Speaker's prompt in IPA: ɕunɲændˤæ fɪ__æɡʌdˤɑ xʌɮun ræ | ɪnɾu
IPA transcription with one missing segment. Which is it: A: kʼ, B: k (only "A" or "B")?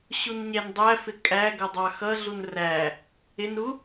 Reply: A